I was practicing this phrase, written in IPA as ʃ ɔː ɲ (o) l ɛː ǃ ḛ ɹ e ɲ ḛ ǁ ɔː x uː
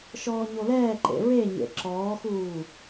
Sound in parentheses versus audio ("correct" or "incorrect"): correct